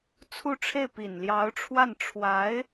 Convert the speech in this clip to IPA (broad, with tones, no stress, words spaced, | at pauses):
t͡sʰu˥˧ʈ͡ʂʰe˥˩ɪ̯ pi˨˩nljɑ˧˥ʊ̯ʈ͡ʂʰwa˥˩n ʈ͡ʂʰwa˧˥ɪ̯